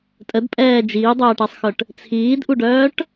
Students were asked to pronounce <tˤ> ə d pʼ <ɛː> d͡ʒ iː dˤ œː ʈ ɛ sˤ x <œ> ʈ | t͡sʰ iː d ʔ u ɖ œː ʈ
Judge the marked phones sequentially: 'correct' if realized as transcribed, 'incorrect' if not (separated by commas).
incorrect, correct, correct